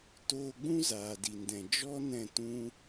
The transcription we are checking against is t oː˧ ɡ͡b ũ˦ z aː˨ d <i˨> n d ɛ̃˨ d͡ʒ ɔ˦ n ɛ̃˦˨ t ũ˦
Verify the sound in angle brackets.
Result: correct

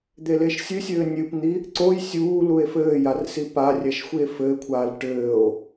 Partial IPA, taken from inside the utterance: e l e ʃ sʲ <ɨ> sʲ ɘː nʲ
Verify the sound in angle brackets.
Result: correct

